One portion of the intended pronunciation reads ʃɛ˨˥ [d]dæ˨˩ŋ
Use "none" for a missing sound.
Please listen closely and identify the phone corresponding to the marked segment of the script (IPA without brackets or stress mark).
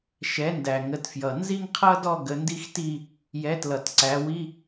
n